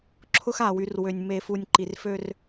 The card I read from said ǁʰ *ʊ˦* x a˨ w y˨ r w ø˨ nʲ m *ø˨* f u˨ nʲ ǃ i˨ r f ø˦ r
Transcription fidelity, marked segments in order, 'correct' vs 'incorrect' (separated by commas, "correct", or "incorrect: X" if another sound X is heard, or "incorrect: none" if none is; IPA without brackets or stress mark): correct, incorrect: e˨